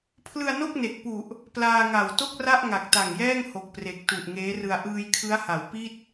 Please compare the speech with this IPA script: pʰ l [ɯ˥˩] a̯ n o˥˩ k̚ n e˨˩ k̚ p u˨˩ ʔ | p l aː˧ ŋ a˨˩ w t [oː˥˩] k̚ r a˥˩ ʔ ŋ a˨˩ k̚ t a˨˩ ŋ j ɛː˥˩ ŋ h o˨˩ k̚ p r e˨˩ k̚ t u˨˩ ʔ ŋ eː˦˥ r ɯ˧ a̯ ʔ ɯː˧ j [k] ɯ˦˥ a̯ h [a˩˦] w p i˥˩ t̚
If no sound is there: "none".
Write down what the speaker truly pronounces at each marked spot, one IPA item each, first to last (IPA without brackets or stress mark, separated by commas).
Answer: ɯ˧, o˥˩, kʰ, a˩˦